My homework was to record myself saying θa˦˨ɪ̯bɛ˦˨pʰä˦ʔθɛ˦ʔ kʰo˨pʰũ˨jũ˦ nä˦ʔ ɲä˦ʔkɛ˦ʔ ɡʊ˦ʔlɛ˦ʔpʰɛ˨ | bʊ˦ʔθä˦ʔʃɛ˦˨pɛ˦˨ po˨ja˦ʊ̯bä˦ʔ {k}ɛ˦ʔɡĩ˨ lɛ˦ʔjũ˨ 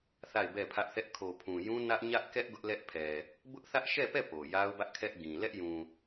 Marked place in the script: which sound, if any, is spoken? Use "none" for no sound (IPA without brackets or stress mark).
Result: kʰ